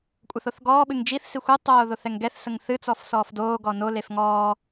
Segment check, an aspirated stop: absent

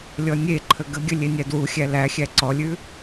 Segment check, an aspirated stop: present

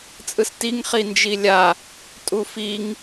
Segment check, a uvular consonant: present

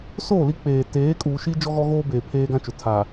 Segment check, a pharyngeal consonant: absent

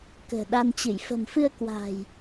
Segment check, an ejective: absent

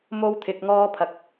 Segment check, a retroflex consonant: absent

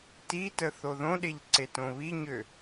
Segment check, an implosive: present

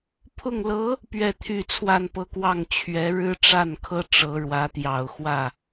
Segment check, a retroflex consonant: present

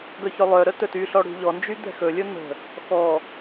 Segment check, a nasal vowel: absent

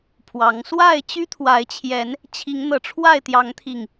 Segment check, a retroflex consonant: present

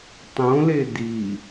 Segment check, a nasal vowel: present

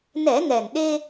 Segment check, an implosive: present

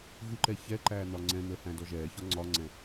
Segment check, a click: present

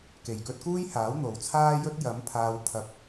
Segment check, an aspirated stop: present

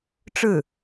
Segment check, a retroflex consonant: present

